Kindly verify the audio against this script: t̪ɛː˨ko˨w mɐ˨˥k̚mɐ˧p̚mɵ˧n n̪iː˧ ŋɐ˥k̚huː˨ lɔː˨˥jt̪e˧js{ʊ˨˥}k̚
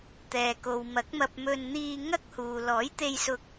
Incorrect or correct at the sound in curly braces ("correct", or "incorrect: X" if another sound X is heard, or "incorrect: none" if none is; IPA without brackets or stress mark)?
incorrect: ʊ˧